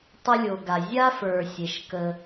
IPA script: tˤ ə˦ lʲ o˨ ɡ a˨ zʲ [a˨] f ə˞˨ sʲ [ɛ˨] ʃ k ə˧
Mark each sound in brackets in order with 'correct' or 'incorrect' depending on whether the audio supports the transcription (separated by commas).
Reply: incorrect, incorrect